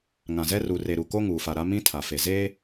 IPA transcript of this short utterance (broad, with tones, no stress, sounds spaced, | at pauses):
ŋ ã˨ z ɛ˦ r u˨ r e˨ ɾ u˨ k o˦ ŋ uː˨ f a˨ ɾ a˦ m ĩ˦ tʰ a˨ f e˨ z eː˦